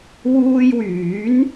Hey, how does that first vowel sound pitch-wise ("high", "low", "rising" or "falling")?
high